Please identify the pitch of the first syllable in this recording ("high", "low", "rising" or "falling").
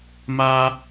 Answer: high